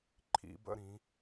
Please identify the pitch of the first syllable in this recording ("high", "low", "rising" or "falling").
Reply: rising